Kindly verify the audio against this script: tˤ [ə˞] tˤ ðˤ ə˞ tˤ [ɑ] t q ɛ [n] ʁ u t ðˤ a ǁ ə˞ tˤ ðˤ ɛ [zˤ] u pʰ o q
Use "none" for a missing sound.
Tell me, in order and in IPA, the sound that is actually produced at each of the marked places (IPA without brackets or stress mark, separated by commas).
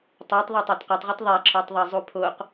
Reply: ə˞, a, tˤ, zˤ